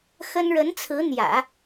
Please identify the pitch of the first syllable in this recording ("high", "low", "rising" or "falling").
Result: high